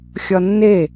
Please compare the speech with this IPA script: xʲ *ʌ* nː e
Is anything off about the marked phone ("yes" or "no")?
no